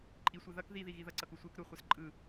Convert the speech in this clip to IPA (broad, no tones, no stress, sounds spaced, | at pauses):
ǃʼ i sʷ ɛ ð ʌ k ð i ð i ɣ i ð ʌ ǀ ʌ k u sʷ e k ɾ u χʷ ɛ s ǃʼ ɯ